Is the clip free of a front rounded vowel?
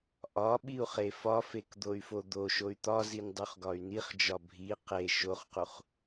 no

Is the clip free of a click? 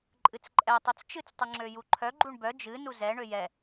no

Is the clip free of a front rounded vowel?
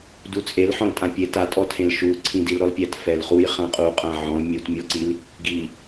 yes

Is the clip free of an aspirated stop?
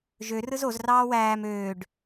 yes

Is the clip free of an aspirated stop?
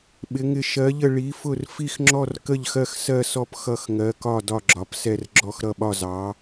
yes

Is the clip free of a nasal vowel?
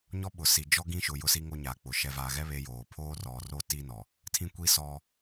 no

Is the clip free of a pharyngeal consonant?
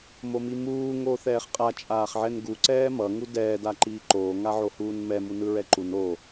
no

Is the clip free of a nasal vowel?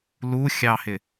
yes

